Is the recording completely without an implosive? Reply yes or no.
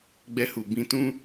yes